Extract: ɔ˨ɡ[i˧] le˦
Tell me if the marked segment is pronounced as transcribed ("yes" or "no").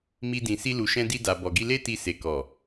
yes